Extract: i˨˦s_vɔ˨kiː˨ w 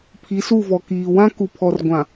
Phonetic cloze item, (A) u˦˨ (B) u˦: A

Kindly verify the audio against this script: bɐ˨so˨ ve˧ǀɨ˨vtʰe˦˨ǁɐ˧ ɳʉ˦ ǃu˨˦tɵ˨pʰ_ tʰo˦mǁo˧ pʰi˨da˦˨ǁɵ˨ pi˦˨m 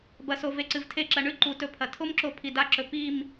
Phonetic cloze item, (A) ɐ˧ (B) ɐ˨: B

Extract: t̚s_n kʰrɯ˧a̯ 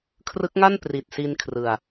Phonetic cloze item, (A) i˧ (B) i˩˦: A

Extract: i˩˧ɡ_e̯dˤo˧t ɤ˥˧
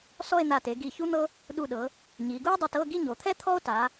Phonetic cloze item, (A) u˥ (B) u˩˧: A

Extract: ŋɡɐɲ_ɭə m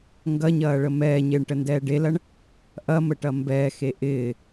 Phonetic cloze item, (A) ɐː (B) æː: A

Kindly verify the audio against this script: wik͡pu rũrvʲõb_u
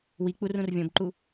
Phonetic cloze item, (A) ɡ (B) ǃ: B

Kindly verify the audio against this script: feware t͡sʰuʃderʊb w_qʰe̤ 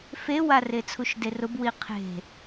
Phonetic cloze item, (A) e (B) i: B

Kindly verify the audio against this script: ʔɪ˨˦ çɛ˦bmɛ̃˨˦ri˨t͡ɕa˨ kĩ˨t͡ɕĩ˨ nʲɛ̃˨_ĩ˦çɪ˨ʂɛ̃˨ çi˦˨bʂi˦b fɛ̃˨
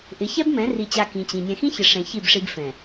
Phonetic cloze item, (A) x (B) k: A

